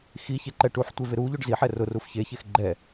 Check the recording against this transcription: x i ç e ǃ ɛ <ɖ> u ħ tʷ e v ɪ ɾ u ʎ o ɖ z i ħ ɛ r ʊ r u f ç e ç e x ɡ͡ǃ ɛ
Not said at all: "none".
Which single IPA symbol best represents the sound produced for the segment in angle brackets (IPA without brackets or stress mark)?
ʈ